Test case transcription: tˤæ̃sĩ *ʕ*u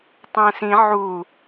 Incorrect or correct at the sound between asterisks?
correct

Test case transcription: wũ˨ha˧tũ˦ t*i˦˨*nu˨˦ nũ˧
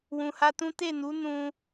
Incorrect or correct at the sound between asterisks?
incorrect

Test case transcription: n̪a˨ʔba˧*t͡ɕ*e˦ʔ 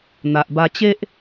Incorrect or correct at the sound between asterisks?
correct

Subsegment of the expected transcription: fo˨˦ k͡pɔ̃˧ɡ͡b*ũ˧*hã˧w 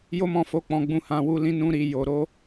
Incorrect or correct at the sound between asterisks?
correct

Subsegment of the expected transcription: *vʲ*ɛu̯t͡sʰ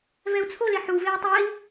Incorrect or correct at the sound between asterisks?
incorrect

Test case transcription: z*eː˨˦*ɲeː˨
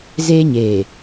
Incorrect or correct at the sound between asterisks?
incorrect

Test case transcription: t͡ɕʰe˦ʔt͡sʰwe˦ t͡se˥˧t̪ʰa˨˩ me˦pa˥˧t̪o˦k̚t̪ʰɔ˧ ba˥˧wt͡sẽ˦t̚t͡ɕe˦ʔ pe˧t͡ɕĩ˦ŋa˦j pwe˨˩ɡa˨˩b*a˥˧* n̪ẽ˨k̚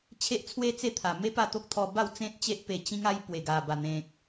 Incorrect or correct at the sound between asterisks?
incorrect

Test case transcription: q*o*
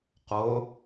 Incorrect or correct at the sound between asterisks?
correct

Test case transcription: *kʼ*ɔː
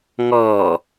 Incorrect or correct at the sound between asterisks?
incorrect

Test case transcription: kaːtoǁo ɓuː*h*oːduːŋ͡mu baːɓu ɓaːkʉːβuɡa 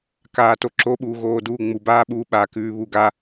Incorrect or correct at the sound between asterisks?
incorrect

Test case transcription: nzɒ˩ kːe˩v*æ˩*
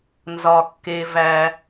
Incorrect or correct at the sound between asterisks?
correct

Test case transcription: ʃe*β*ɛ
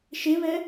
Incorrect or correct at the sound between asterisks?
correct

